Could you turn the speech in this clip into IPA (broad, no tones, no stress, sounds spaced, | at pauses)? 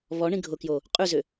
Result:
β ɔ ɳ ĩ ɡʱ ʊ k j o | qʼ ʉ z ʏ